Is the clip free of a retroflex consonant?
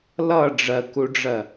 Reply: no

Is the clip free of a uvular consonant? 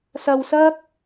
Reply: yes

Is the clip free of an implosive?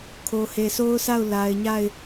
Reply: yes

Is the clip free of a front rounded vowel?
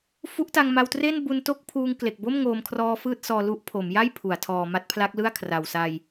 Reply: yes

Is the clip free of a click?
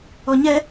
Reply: yes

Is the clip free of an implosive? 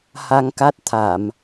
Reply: yes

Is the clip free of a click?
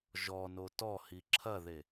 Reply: no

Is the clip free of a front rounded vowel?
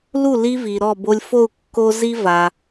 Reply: yes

